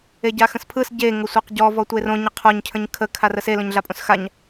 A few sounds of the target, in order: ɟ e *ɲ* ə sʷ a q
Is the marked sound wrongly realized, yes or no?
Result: yes